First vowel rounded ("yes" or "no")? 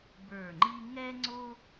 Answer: no